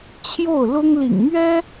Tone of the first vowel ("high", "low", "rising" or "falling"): falling